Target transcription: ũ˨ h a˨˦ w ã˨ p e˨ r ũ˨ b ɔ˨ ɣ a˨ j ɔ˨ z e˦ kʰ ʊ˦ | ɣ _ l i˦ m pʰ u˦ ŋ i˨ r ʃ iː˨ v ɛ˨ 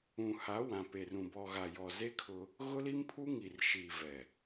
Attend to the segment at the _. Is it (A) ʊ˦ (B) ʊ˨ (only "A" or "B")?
A